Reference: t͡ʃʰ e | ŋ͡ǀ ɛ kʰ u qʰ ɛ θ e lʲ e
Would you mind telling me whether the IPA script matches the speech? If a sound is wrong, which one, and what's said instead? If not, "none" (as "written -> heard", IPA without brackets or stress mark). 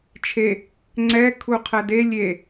θ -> d